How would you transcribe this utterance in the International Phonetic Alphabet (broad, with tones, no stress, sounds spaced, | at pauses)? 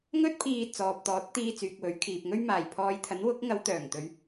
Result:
ŋ ɵ˥ t̚ pʰ iː˧ t͡s ɔː˨ p̚ t̪ ɔː˨˥ t̚ t̪ iː˧ t͡s yː˨ k̚ w ɵ˨˥ ɥ kʰ iː˨ p̚ ŋ ɵ˥ ɥ m aː˨˩ j pʰ ɔː˨˧ j t̪ʰ ɐ˨˥ n w ʊ˨˥ k̚ ŋ ɐ˨˧ w t̪ œː˨˩ ŋ t̪ ɵ˨˧ ɥ